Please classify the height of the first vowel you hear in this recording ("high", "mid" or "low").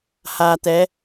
low